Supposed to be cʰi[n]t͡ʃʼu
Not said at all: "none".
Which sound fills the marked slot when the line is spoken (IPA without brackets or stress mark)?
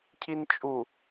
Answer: n